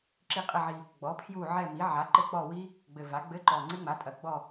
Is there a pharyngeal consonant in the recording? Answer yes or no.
yes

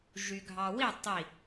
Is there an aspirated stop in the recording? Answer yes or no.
no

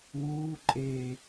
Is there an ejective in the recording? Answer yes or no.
yes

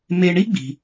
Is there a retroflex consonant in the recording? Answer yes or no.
yes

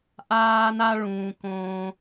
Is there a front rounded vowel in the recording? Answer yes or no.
no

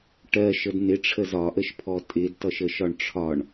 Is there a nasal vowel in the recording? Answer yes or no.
no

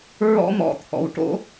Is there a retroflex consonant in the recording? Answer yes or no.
yes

